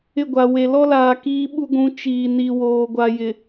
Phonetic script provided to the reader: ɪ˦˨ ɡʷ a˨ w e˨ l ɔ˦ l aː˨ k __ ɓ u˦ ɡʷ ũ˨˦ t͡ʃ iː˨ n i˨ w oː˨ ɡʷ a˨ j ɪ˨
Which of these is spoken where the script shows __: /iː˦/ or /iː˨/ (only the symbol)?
iː˦